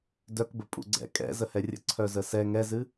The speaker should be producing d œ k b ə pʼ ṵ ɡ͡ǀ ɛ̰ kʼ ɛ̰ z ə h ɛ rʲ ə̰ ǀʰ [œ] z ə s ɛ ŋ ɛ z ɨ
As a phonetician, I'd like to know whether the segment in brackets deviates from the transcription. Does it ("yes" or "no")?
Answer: no